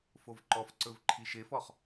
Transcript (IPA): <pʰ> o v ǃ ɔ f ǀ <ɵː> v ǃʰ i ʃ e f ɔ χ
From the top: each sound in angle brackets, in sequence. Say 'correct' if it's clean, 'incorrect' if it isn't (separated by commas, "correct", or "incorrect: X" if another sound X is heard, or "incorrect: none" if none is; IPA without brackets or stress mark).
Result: incorrect: f, incorrect: ɵ